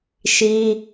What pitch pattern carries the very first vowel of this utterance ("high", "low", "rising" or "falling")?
high